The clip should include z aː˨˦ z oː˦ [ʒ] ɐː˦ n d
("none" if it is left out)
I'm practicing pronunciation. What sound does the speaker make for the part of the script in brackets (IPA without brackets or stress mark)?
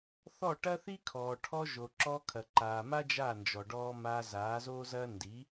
z